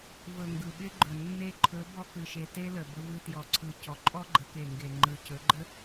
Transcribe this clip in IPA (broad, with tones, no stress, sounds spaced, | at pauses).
v ɵ˨ ŋ ɡ ɯ˨ ɓ ɪ˦ ɡ͡ǃ ɵ˨ nː e˧ ǃʰ ɵ˨˦ b ɔ˧ k ɯ˨ ʃ e˨ t e˦ l ə˨ b ə˧ v ɯ˧ t j ɔ˨ ǀʰ ɯ˨ c ɔ˨ ǃʼ ɔ˦ ɡ͡ǃ ə˨˦ k e˨ ŋ ɡ e˨ ŋ͡ǃ ɯ˨ c ɵ˨˦ ɡ͡ǃ ə˦